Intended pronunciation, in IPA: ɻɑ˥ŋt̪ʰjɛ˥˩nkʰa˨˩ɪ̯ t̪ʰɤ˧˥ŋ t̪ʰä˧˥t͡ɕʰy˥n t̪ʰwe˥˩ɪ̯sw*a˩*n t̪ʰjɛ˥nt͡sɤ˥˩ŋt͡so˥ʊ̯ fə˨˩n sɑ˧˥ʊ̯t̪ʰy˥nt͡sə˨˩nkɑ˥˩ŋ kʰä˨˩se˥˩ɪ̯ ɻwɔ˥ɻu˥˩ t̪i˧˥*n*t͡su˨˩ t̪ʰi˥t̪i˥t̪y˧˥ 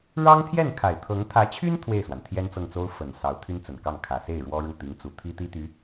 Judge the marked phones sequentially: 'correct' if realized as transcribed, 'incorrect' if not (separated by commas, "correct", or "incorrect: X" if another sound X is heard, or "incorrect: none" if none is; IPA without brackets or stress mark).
correct, incorrect: ŋ